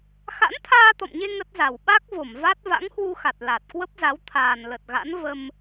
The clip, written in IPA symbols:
x a̰˧˥ n t̪ʰ aː˧ t̪ ɔ̰˧˨ m ɲ e˧ ŋ ə˦˥ t̚ z a˧˩ w ɓ a˦˥ k̚ v o˧˩ m v a˦˥ t̚ v a̰˧˥ ŋ h w u˧ x a˨˩ t̚ l a˨˩ t̚ k w ə˦˥ p̚ z a˨˦ w t̪ʰ aː˨˩ n l ə˨˩ t̚ ɣ a̰˧˥ n v ə˧ m

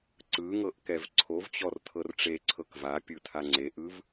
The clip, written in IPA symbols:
ǀ ɯ ŋ ɤ ʔ k ɛ v ǀʰ o v t͡ɕ ɔ r tʰ ɤ r ʈ͡ʂ e ǀʰ ɤ k v a pʲ ɯ tʰ a ŋ͡ǀ e ʔ ɯ v

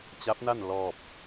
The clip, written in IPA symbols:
t͡ɕ a˧˥ p̚ n a˥˨ n l ɔː˧˩ p̚

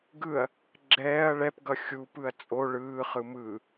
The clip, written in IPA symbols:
ɡ ɯ ɐ̯ | ɡ͡ǁ ɛː ɐ̯ ɭ ɛ p ɡ ʌ xʲ u p ɯ ɐ̯ t͡sʼ o ɭ ɯː χ ɯ m ɯ

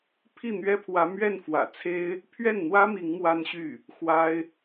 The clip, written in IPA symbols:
pʰ i˥˩ n̪ ɥ ɛ˥ pʰ w ä˧˥ m ɥ ɛ˥˩ n f w ä̰˨˩ t͡sʰ e˥ ɪ̯ | pʰ ɥ ɛ˥˩ n n̪ w ä˥ m i˧˥ ŋ m w a˥ n ɕ y˥˩ | x w a˥ ɪ̯

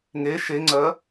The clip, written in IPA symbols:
ŋ e ʃ e ŋ͡ǀ ɜ

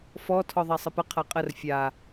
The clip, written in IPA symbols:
f ɔ tʰ ɔ ðˤ a sˤ ə p ə qʰ a qʼ ə r fʲ a

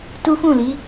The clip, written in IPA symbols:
t u˦ f ũ˦˨ l i˨˦

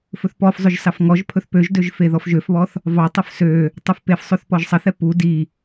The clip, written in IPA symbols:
f ɵ θ p ɔ f zˤ ɵ ʒ s ɑ f ŋ ɔ ʒ pʰ ɵ θ p ø ʒ d ø ʒ f e ð ɔ f ʒ ø f β ɔ θ | v ɑ tˤ ø f s ø | tˤ ɵ f p e f sˤ ø θ p ɔ ʒ sˤ ɐ θ ɛ p u d i

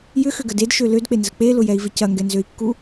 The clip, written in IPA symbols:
j ʏ x ʏ ɡ ə d e d ʃ ø l ø d k͡p e n z ə k͡p e l ʊ j ɛ i̯ v ɪ c ɐ ŋ ɡ ɛ n z ø i̯ kː u

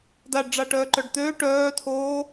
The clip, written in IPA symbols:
d a ɖ ɖ͡ʐ a ʈ œː ǃ œ ɖ t̪ øː ʈ œː tʰ oː

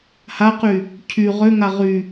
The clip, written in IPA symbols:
h a q y | cʰ y ʁ ø ŋ a ʁ y

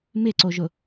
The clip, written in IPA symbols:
m ɪ ǀ o ʒ ʊ

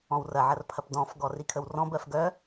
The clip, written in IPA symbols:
ɔ̃ w r ɐ ʕ ɐ r pʰ ɐ p d ɔ̃ f ɡ ɔ r i kʰ ə w r ɔ̃ b ɜ f ɡ œ

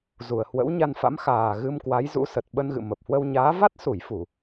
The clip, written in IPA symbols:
z u˨˩ ə̯ h w ə̰˧˥ w ɲ a˧ n f a̰˧˥ m x aː˨˩ ɣ ɨ˧ m k w a˨˦ j z ṵ˧˥ s ə˨˩ t̚ ɓ ə˧ n ɣ ɨ̰˧˨ m ə˨˩ p̚ h w ə˧ w ɲ aː˨˦ v a˦˥ t̚ s u˧˩ j f u˧˩˨

